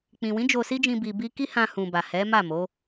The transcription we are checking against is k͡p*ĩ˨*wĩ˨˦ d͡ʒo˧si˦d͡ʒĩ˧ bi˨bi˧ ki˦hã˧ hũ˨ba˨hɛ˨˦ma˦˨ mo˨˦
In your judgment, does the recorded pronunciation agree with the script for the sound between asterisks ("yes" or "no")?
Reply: yes